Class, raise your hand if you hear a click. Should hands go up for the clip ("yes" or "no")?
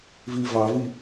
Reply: no